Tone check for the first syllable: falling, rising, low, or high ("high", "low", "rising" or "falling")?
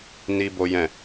high